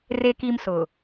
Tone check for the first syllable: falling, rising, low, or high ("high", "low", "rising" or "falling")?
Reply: low